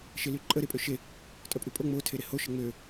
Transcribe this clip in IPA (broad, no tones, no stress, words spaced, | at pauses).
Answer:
ʃelyǃʼə ɾepʼøʃe | tʼœpʼypʼo ŋ͡mo tʰeɾeho ʃəŋ͡mø